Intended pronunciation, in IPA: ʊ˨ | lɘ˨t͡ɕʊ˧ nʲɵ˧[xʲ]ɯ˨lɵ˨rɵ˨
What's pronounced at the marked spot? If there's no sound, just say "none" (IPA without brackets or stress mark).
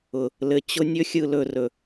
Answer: xʲ